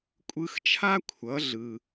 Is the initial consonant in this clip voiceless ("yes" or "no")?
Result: yes